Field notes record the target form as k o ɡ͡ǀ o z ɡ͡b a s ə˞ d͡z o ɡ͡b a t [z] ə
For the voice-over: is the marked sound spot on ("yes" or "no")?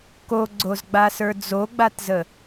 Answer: yes